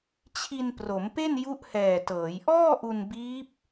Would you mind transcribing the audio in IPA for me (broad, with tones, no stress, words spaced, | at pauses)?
t͡ɕʰi˧npro˩˦mpe˥˩n ju˦˥ʔhɛː˨˩tɤː˩˦j ʔɔː˥˩ʔu˧nbiː˦˥p̚